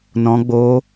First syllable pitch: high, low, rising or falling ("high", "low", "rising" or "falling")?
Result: high